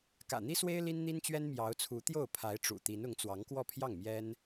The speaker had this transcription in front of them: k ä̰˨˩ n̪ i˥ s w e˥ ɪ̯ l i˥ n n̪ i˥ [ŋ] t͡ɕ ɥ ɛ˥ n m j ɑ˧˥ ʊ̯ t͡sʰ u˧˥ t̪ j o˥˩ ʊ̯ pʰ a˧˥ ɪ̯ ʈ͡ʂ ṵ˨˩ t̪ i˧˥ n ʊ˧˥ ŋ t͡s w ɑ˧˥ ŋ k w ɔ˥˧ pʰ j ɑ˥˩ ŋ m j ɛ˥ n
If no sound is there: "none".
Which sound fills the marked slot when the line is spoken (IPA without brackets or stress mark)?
n